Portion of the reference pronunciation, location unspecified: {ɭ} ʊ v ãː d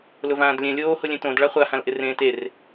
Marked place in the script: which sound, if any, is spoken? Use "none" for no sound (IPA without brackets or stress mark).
l